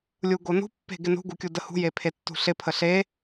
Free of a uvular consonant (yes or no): yes